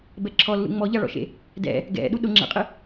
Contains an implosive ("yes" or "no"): yes